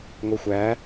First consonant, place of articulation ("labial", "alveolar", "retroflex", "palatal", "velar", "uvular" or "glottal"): velar